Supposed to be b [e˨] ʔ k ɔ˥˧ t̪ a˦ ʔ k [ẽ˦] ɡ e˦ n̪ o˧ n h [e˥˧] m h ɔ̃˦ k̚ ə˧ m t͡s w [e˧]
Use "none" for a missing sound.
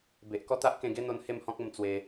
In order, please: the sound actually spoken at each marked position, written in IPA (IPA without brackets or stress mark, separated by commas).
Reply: e˨, ẽ˧, e˥˧, e˧